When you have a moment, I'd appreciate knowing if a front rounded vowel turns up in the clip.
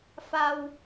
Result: no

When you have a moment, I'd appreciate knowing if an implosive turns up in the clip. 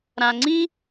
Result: no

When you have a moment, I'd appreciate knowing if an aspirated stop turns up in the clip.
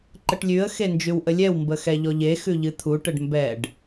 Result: yes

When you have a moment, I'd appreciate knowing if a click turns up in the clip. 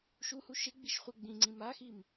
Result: yes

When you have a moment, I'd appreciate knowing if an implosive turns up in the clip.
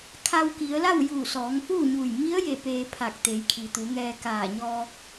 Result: no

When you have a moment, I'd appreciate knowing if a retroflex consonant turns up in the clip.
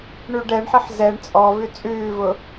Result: yes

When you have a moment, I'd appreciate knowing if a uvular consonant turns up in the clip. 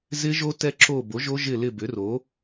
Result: no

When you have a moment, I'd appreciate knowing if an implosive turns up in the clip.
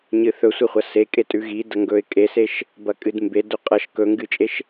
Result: no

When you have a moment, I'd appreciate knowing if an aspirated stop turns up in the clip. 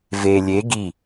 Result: no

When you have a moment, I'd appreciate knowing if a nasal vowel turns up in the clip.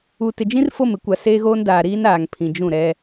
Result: yes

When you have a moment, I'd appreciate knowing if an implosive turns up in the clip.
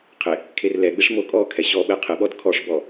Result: yes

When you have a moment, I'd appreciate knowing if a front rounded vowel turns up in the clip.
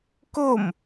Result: no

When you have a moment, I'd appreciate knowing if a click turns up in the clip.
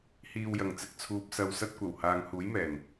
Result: no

